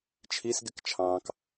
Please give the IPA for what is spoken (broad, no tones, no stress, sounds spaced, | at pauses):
t͡ʃʰ i s ɡ ɪ k t͡ʃʰ ɑ̃ː k